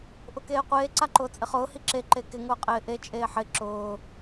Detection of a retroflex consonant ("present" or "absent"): absent